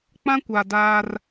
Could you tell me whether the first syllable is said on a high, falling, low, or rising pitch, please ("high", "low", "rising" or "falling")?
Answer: high